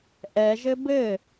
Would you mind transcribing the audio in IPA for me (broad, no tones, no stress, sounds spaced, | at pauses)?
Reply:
ʔ ɛ ʒ ɘ b ɘ